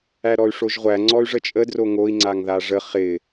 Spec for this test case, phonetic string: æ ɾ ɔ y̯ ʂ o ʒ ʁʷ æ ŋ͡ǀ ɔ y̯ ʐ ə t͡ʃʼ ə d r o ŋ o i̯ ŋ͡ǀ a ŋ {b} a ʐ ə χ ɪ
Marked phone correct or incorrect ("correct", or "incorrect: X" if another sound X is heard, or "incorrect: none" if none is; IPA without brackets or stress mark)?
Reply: incorrect: ð